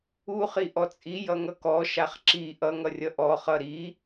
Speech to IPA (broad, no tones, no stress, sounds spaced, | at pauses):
u χ i ʔ ɔ t͡sʼ i j ʌ ŋ ʌ k ɔ ʃ a χ ǁ i ʔ ʌ ŋ ʌ rʲ ʌ ʔ ɔ χ ʌ ɾ i